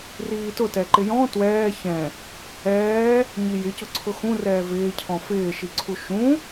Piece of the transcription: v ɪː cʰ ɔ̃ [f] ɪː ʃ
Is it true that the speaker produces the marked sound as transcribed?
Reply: yes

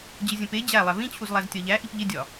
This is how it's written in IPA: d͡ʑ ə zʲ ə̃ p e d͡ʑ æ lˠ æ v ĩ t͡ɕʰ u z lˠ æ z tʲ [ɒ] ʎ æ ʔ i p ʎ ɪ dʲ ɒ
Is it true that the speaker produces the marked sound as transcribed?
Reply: yes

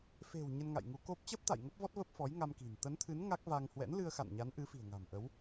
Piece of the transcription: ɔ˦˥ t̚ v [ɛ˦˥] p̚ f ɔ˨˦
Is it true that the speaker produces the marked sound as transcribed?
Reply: no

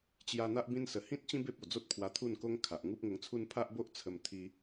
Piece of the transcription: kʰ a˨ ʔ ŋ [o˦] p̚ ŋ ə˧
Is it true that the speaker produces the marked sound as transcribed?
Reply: no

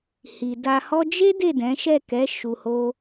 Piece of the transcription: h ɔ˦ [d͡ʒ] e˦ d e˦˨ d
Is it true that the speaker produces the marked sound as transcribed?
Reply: yes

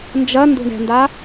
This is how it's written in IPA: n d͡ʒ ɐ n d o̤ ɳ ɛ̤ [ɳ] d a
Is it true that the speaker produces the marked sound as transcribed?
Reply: no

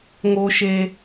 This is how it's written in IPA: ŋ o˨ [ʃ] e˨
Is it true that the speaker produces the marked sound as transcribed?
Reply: yes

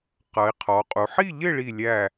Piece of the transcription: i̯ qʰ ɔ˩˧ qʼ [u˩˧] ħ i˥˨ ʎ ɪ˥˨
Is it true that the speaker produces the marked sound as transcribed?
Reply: yes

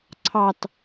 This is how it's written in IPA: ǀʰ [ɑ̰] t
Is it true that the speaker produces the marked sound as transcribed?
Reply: no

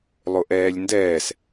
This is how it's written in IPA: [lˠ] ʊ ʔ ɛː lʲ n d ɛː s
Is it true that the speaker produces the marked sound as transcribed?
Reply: yes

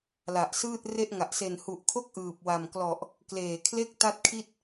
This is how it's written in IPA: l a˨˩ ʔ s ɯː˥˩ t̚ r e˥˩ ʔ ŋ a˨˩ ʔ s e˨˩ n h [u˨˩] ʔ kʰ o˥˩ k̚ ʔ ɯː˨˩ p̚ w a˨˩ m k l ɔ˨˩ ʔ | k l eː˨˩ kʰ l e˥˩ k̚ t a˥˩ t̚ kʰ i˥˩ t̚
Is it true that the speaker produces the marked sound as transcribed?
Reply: yes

